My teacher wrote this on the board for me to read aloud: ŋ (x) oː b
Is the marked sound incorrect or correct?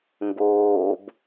incorrect